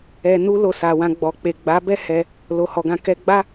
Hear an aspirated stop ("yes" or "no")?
no